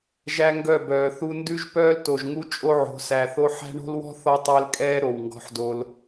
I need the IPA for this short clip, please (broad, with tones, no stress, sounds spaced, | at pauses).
ʒ æ˦ ŋ ɡ œ˦˨ b œː˨ θ u˦ n d ʉ˦ ʒ p œː˦ l t o˨ ʒ ŋ u˦ t͡ʃʼ o˦ ʕ o̤˨˦ s æ˨ θ o˦ ħ æ̤˦ ɳ o̤˦ l w ɔ̤˦ θ ɔ˦ tˤ æ˦ l kʼ ɛː˦ ɾ o˨ w ŋ ɡ ɔ̤˦ ħ d o˦ l